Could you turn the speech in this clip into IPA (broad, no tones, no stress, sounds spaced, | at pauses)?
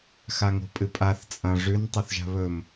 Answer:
x a ŋ o̤ pʼ ɨ pʼ a θ t͡sʼ ɐ̃ ʐ ʉ n tˤ ɵ θ ʒ a̤ β ɵ m